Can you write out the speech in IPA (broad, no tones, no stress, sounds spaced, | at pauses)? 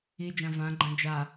i d͡ʒ ã v ã ɡ͡ǃ ã d͡ʒ a